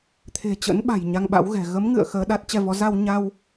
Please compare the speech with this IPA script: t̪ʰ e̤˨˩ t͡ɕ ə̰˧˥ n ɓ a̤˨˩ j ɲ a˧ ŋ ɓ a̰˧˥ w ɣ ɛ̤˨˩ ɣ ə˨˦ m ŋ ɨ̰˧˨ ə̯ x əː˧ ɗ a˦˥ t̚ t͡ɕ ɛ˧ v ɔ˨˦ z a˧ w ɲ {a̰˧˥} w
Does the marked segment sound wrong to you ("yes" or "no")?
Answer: yes